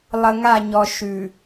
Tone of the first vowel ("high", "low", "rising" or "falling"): low